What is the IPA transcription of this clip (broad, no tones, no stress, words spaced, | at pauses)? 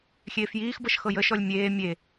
xʲeːfjiːxbɤʃ xɤjəʃɔlʲ mʲeː mʲe